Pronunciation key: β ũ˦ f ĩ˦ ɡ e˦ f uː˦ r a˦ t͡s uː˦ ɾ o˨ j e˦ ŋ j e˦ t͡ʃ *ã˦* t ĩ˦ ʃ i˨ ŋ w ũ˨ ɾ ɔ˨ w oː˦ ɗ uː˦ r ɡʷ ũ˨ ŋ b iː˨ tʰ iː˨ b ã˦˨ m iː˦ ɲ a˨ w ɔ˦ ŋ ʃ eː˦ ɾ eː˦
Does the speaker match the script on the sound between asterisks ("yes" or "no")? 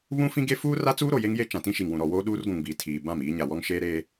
no